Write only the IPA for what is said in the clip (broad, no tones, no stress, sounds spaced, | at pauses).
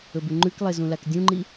ɵ b ʉ ŋ͡ǃ ʉ k lˠ e z ũ l a k dʲ ũ ŋ͡ǃ i